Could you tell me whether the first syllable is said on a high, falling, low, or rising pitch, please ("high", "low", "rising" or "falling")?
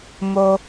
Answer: high